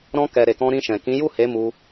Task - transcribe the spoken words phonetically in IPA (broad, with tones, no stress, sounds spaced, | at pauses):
ɾ ɔ̃˧ k ɛ˨ ɾ e˨ k ɔ̃˧ ɾ ĩ˧ ʃ ɛ̃˨ k ĩ˨˦ j u˦˨ h e˨˦ m u˧